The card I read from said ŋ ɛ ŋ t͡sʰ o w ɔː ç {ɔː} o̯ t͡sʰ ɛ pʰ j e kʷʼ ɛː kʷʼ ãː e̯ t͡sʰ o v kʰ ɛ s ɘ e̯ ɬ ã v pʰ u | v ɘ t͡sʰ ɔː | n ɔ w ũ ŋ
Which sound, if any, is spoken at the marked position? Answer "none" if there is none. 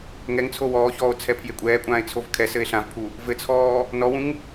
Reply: ɔː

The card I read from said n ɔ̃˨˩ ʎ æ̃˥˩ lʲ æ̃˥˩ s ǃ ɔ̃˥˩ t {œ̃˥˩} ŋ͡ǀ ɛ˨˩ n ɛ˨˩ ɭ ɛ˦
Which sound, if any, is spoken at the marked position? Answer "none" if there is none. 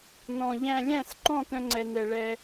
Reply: œ̃˦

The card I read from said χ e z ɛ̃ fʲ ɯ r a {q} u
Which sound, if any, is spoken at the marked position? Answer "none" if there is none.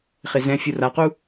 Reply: q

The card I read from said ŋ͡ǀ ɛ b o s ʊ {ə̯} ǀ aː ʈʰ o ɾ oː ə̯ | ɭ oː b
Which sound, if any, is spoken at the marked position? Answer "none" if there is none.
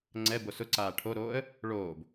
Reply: none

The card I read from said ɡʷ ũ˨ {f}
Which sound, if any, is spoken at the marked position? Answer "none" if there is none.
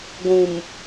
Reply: m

